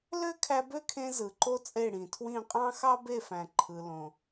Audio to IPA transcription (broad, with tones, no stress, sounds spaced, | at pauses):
l ø˦ kʰ æ˧ b ø˦ kʰ ẽ˧ z ɯ˨ ǃ o˦ t͡sʼ e˦˨ ɽ ĩ˨ tʰ w ĩ˦˨ qʼ ɑ̃˦ x ɑ˦ b e˦˨ f æ̃˨ ǃʰ ɯ˨ l õ˨